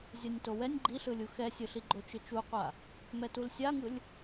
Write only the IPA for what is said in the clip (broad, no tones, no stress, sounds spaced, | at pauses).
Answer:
zʲ a nʲ t o w ɛ nʲ ɡ͡ǃ i ɬ ɯ lʲ u x ɛ sʲ ɯ ɬ i ɡ͡ǃ o t͡ʃ ɯ t͡ʃ u qʷ a | m ɛ t u l sʲ a ŋ ɯ lʲ